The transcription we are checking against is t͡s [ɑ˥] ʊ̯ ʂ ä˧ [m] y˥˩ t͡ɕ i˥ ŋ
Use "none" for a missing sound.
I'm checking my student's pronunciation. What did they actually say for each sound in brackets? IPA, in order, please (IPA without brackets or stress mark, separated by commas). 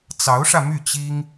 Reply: ɑ˧˥, m